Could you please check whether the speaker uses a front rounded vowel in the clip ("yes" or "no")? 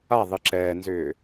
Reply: yes